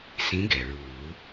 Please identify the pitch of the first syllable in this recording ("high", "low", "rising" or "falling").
rising